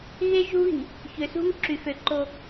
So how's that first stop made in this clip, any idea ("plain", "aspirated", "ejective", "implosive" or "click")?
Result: click